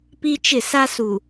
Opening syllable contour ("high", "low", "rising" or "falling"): high